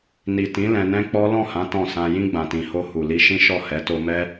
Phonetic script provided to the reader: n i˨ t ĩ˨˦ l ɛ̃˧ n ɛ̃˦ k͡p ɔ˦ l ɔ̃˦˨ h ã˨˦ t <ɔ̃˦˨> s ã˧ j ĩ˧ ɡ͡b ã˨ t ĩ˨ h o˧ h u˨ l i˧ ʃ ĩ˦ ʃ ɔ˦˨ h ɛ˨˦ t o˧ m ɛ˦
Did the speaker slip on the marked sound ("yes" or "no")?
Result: no